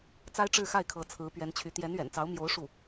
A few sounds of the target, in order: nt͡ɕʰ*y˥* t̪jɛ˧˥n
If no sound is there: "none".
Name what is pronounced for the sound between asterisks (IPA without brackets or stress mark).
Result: y˧˥